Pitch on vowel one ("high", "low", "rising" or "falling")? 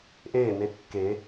falling